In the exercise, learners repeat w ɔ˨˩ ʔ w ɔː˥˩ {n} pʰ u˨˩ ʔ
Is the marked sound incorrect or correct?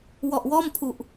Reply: incorrect